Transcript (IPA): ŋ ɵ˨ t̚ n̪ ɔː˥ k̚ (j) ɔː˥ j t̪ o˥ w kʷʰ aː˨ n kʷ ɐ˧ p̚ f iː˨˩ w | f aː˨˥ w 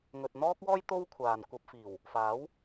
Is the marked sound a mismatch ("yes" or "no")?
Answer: yes